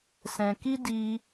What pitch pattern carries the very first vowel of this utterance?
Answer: low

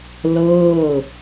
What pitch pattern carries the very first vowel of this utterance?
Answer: falling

